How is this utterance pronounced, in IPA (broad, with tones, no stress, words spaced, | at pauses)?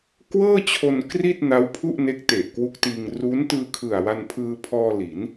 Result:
kwɤː˥˩t͡ɕʰo˧n kri˥˩t̚ na˦˥wpʰu˥˩ʔne˦˥k̚te˨˩ʔ kwu˦˥k̚tiː˧ŋ ru˦˥n tɯː˧ kʰɯ˨˩a̯wa˧npʰɯː˧pʰɔː˧ li˩˦n